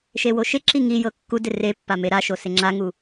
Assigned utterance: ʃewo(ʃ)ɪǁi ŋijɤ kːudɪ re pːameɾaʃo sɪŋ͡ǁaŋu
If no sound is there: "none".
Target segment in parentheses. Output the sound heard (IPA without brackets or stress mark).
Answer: ʃ